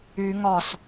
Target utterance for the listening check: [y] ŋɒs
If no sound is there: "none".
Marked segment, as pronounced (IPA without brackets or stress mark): y